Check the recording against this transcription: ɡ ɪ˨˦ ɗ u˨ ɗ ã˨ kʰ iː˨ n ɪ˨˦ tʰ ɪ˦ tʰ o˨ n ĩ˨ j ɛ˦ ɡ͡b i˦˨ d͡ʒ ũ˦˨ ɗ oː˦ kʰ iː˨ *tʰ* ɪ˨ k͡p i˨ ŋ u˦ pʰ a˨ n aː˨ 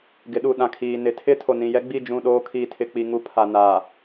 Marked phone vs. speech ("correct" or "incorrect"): correct